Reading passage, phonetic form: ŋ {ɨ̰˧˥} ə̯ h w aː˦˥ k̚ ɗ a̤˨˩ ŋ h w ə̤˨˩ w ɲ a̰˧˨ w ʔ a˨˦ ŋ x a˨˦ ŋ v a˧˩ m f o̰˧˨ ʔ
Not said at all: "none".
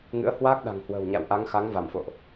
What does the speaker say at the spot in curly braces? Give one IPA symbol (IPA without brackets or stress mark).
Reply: ɨ̰˧˥